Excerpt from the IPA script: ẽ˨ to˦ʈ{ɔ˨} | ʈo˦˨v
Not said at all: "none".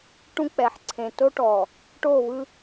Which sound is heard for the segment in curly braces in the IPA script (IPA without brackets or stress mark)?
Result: ɔ˨